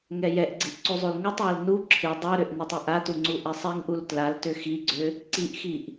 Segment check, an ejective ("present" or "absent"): absent